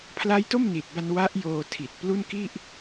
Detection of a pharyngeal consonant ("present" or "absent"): absent